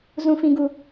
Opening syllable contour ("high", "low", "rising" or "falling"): high